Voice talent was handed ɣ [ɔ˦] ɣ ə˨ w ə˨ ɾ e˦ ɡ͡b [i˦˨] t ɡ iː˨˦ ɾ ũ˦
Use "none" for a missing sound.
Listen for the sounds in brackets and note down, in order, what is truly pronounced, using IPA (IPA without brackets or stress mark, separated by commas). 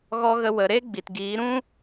ɔ˨, i˨